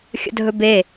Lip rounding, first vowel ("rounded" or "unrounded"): unrounded